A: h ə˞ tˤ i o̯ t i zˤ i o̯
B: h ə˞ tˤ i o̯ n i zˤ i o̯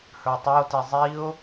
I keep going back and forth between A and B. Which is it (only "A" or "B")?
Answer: A